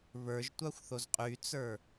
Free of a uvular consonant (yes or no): no